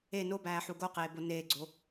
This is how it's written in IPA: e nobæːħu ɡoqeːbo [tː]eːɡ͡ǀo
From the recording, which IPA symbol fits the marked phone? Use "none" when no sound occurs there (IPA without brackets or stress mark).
n